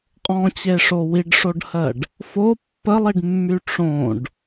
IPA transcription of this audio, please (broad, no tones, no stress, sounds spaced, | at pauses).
qʼ ɔ̃ t͡ɕ e ʂ o w i ɖ ʂ o ɖ h ɜ ɖ | f o pː ə lˠ i ɖ mː y ʈ͡ʂ õ ɖ